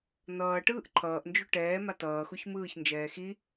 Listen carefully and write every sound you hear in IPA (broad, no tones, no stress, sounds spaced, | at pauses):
n̪ ʌː ʈ ɯː ʔ ǃʰ ʌː ʔ n d͡ʒ u ʈ ɛː m a t ʌː x u ç m ɯː ç n d͡ʒ ɛː x i